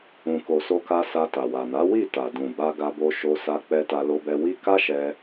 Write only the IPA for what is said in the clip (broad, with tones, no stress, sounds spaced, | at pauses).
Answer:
ũ˨ k o˨ s o˧ k a˧ s a˧ t a˨ w a˨ n a˨˦ w i˦˨ t a˨ d ũ˨ b a˧ ɡ a˧ b o˧ ʃ o˧ s a˧ k͡p ɛ˧ t a˧ l o˦ b ɛ˦ w i˦ k a˦ ʃ ɛ˧